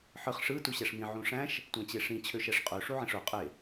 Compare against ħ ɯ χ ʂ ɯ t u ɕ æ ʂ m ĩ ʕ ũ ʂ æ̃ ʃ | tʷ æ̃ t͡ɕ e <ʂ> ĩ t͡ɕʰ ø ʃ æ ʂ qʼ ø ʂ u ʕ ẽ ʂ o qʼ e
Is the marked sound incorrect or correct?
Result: correct